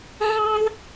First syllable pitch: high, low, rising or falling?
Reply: high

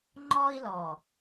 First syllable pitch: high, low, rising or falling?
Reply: high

